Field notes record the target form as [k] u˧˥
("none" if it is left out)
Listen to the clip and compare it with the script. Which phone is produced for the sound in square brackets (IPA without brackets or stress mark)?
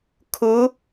kʰ